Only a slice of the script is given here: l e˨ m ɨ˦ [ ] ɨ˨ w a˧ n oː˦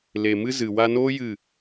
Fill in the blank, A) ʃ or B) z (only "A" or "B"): B